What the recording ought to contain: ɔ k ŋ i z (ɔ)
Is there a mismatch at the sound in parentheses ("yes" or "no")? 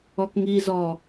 no